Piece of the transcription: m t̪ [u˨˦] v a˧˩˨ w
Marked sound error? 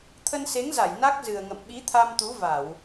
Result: no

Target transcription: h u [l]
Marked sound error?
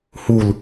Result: no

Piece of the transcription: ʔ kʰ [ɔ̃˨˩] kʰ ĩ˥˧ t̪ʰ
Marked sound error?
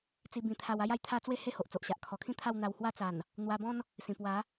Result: yes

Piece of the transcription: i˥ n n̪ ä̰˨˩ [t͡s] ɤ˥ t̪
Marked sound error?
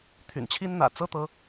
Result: no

